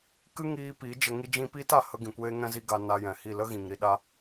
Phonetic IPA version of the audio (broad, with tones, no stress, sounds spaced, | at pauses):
k ɨ˦ ŋ iː˧ p i˨˦ d͡ʒ ə˧ ŋ i˧ d͡ʒ ĩ˧ p iː˦ t a˨ h ə˧ ɡ ĩ˨ kʷ eː˧ ŋ ɛ̃˧ z i˧ ɡ a˧ n a˧ j ɛ̃˨ h i˦˨ l ə˦ ɣ ĩ˨ ŋ ɾ i˧ ɗ a˧